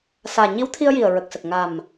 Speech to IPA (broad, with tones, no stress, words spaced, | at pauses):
saː˨˩ɲi˧˥w t̪ʰi˧ə̯ji˨˩ə̯ɹə˨˩k̚sə˨˩k̚ ŋa˨˩m